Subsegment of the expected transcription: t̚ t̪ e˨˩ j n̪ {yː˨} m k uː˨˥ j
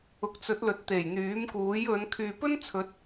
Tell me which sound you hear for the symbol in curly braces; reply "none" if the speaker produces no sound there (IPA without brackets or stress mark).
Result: yː˨˥